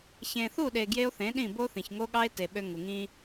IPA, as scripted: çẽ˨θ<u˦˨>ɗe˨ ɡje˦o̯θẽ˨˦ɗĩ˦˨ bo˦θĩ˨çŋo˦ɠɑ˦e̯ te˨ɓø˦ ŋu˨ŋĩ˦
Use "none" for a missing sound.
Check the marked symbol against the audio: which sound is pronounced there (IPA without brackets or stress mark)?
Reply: u˦˨